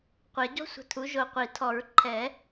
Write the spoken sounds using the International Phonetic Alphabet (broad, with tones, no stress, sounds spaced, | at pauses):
qʷ ɛ˨˩˦ ɟ ɔ̤˥ sʷ ə̤˧˩ tʰ u˩˥ ʒ o˧˩ qʷ i˨˩˦ tʰ ɔ˨˩˦ ɹ ǃʰ ɛ˨˩˦